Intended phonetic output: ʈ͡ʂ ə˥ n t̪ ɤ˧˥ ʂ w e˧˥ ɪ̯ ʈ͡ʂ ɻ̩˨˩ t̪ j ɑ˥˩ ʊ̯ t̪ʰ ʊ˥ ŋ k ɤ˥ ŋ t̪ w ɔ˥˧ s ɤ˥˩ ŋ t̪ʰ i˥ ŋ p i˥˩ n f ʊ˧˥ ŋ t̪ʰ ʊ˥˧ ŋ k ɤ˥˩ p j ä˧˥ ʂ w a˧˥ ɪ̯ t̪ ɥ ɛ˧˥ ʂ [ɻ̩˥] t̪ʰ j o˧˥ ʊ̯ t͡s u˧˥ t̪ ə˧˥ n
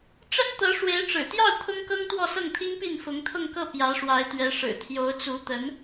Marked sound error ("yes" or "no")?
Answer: yes